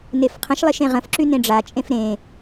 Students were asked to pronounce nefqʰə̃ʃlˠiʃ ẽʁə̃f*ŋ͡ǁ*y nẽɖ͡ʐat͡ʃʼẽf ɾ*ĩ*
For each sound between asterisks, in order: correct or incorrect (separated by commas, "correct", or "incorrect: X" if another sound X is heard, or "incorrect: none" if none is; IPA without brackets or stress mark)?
incorrect: ǁ, incorrect: ẽ